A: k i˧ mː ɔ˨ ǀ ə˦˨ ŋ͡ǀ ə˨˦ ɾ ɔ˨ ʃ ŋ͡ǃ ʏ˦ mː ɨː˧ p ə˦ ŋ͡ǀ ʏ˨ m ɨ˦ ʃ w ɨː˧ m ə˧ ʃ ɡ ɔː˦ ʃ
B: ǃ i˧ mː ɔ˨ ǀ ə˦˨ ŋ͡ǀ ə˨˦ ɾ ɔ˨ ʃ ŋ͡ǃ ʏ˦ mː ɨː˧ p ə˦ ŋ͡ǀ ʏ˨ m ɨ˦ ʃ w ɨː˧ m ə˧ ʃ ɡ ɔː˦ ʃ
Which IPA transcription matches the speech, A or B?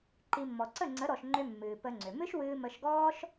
B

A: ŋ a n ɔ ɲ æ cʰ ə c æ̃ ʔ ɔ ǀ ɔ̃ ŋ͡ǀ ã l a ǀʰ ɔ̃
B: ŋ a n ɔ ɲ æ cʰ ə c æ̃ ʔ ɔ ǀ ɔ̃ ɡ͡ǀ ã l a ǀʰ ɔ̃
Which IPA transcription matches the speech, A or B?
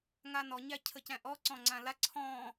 A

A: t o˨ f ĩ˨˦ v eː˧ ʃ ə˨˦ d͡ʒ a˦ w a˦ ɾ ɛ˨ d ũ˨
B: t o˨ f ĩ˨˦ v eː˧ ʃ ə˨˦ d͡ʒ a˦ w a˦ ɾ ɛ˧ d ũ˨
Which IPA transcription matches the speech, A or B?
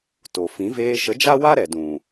A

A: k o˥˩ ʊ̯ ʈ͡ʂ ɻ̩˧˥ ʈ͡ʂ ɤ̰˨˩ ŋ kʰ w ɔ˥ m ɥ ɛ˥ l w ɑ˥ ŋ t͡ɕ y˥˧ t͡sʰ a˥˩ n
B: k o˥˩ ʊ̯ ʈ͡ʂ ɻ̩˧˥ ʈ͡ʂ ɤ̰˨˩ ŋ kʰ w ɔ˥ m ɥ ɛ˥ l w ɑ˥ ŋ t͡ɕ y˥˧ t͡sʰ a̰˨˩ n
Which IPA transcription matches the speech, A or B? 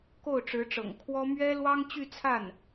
A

